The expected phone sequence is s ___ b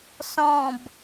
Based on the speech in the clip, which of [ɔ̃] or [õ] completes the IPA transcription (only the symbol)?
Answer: ɔ̃